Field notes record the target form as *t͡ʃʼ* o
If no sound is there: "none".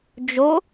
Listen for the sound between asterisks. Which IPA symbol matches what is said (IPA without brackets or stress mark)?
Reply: d͡ʒ